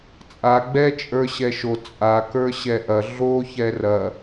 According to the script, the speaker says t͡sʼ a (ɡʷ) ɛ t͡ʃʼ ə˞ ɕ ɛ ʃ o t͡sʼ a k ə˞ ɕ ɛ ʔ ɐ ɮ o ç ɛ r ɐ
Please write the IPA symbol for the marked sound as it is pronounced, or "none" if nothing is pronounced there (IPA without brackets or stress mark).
ɡ͡b